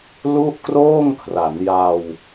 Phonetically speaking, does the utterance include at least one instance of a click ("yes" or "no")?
no